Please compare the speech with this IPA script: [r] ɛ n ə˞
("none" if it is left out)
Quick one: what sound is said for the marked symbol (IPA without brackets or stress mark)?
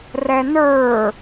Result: r